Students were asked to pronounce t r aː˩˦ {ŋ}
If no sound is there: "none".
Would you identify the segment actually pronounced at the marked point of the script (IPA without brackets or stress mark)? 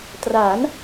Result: n